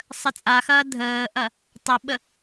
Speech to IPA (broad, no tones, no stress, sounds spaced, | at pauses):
sˤ ə t͡sʼ a x ɐː dʱ əː ʔ ɐ | tˤ ɐ ɓ ə